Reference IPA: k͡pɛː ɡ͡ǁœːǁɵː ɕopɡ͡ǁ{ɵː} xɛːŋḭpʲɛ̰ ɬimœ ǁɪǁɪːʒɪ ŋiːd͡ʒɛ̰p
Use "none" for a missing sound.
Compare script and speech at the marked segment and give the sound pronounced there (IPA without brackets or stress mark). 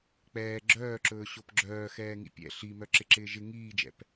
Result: œː